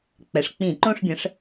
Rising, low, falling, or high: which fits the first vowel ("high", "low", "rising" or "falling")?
low